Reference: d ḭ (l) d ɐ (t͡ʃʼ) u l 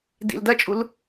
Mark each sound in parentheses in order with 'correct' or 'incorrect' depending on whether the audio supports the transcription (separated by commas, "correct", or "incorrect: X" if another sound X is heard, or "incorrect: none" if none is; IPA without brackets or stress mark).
correct, correct